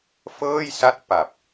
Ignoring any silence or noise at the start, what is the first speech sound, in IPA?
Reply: f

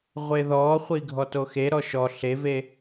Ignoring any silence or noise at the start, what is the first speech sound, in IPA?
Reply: ʁʷ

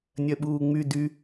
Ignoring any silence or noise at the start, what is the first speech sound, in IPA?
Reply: nʲ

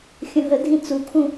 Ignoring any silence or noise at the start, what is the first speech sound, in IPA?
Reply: xʲ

